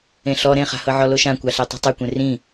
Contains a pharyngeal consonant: yes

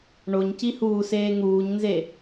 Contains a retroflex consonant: yes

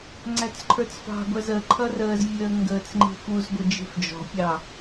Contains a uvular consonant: no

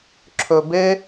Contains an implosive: no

